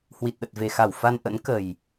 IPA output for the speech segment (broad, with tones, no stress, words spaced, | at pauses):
hwi˨˩t̚ɗə˨˩t̚ve˨˩xa˧˩w fa˧nʔə̰˧˥n kə˨˩j